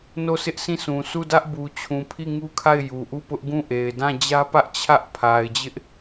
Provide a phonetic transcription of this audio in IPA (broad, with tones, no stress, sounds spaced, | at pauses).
n o˦˨ s ɪ˦ ʔ s ĩ˦˨ s ũ˨ sʰ u˦˨ d ä˦ ʔ b u˨ t͡ɕʰ ũ˨ pʰ i˦˨ ŋ u˦ kʰ a˦˨ ɪ̯ j u˨ ʔ u˦˨ p ʊ˦ ʔ ɡ ũ˦˨ ʔ e˨ ɪ̯ d ã˦˨ d͡ʑ ä˦ p ä˦ ʔ t͡ɕʰ ä˦ ʔ pʰ a˨ ɪ̯ d͡ʑ ɪ˦ ʔ